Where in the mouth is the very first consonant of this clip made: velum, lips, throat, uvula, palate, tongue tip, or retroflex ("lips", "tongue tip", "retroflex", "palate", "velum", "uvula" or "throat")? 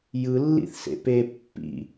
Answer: palate